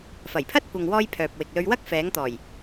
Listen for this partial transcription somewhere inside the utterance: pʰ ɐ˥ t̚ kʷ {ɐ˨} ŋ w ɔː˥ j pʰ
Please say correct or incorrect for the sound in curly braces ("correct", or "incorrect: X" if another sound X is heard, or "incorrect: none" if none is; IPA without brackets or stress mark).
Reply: correct